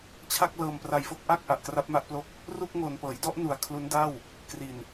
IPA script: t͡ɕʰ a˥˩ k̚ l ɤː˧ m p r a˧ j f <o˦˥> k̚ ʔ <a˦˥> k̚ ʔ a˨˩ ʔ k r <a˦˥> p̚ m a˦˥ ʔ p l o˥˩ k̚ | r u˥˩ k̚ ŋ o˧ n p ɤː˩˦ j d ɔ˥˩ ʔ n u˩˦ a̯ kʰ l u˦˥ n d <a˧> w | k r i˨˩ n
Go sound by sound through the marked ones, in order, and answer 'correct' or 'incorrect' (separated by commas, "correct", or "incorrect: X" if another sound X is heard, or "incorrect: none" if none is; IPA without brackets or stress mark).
incorrect: o˥˩, incorrect: a˥˩, correct, incorrect: a˥˩